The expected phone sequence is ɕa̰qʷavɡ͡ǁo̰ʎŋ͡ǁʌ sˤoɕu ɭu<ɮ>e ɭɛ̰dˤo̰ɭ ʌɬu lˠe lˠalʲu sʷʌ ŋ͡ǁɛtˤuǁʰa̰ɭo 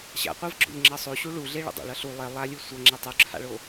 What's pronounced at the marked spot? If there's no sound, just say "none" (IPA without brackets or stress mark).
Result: ɮ